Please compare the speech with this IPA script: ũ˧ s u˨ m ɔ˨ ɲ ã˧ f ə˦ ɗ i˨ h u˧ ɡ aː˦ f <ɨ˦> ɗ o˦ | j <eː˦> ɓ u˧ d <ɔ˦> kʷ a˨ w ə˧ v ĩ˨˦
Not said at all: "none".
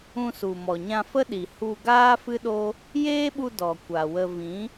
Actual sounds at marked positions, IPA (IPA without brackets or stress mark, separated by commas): ɨ˦, eː˦, ɔ˨